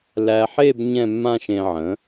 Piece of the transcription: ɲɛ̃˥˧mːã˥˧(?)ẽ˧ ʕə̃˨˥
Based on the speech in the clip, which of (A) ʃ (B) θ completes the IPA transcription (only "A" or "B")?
A